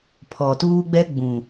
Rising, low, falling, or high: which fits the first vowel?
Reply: low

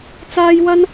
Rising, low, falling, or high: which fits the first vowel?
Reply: high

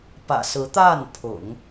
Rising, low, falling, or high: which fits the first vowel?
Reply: low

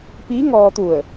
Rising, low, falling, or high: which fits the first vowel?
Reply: rising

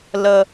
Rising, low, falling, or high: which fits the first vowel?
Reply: low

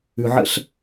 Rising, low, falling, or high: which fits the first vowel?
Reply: low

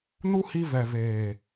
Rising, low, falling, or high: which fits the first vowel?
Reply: high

